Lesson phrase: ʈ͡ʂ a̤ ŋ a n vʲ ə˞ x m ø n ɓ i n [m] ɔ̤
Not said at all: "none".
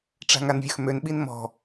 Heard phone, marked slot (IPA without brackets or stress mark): m